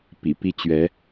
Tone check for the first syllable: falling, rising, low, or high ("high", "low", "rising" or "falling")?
low